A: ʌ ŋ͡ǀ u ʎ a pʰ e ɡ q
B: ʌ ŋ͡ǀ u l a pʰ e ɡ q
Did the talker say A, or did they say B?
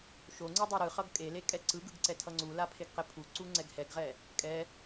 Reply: B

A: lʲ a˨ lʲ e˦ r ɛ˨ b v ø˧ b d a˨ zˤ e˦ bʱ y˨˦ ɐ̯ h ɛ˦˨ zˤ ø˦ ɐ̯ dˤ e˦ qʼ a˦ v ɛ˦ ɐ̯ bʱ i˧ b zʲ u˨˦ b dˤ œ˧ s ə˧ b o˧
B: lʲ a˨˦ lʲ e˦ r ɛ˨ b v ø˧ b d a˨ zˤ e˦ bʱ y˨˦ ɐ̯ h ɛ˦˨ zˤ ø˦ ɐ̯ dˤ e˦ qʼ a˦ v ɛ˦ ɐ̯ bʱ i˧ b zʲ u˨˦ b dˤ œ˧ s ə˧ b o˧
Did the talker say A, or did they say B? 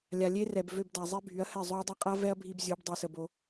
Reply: A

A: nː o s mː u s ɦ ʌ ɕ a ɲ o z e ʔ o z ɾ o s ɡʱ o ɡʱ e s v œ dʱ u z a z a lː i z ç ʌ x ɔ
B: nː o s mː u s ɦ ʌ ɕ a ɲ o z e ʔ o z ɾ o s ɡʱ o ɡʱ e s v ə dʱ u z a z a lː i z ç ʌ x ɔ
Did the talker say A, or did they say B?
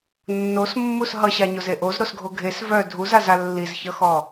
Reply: A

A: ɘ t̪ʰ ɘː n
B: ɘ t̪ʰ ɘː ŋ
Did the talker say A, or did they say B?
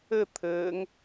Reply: B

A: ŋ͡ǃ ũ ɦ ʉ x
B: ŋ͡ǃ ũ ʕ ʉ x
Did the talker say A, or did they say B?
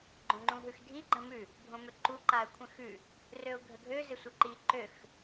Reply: A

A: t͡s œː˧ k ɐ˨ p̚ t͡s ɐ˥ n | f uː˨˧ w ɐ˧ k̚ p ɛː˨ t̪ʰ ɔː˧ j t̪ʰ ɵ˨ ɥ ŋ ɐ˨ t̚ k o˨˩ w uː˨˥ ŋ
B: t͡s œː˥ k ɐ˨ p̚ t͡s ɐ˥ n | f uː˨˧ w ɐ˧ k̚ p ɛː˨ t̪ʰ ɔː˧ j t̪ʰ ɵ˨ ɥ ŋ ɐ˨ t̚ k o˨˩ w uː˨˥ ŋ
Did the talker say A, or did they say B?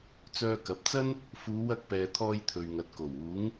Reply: A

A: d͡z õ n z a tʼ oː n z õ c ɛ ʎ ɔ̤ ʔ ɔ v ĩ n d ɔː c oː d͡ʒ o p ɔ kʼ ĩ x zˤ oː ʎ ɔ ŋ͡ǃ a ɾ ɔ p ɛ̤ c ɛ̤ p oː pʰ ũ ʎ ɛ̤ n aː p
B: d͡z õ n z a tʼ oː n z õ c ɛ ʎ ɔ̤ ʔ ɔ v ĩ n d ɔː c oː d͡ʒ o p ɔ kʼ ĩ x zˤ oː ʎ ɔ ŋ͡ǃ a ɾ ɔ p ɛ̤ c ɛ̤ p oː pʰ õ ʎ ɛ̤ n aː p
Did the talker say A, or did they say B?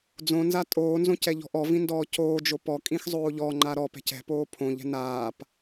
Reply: B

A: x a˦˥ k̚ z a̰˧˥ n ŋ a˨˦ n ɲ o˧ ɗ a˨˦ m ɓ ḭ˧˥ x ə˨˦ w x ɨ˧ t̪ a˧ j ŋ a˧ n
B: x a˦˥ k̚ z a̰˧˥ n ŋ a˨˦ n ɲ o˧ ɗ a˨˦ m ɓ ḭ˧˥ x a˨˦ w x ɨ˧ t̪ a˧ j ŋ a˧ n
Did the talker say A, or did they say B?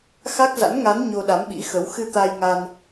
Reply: A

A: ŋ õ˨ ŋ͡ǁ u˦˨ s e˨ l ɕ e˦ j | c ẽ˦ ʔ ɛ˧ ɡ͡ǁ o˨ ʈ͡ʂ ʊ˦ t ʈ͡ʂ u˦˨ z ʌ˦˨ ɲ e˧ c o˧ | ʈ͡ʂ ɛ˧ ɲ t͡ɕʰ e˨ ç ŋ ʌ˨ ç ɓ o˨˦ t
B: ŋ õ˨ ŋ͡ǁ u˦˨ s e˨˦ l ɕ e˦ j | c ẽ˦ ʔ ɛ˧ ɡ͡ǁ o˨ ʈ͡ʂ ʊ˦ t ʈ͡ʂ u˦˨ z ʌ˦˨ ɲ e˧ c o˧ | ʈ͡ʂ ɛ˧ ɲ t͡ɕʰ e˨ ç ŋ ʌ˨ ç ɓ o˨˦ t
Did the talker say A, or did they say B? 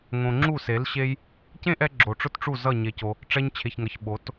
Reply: B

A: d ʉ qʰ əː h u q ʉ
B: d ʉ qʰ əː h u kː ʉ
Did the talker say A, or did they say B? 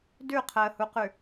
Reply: A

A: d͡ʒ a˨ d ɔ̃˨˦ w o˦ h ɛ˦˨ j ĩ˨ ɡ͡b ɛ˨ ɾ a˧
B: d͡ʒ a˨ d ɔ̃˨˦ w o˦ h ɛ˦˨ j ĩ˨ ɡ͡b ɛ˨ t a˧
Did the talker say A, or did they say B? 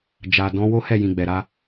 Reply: A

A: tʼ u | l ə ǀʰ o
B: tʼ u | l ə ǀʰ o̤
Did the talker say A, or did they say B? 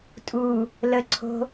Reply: B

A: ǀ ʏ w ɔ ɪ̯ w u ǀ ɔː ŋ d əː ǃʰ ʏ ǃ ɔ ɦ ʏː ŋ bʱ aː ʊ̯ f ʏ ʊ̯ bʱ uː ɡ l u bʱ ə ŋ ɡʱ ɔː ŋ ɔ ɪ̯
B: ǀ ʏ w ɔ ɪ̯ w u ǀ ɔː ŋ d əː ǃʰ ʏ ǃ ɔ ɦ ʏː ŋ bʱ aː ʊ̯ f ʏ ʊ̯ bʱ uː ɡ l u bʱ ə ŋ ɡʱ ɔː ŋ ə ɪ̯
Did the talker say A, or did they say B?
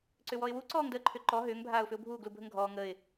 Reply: B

